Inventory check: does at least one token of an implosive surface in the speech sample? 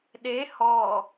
yes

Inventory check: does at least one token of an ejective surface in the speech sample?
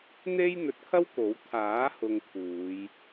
no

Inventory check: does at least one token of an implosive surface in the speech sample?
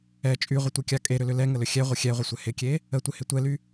no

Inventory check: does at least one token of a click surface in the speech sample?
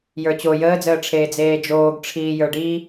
no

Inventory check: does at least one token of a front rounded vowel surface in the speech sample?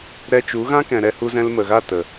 no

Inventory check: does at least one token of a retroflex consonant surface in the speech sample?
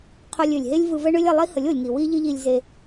yes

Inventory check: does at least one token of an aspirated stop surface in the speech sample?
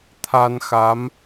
yes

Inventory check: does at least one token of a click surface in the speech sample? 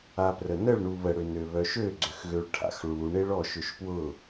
yes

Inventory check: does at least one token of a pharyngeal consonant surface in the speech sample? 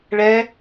no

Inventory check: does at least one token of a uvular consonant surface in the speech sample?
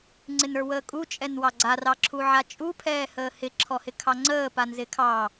no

